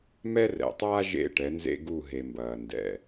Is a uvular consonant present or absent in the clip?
absent